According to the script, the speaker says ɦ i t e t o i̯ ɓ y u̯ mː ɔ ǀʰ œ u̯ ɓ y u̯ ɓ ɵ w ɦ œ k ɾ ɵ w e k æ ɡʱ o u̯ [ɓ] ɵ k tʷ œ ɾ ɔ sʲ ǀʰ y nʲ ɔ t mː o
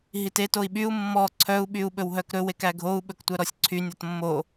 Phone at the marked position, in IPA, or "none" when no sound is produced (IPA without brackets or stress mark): ɓ